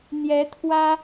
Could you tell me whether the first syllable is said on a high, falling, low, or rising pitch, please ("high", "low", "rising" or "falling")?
rising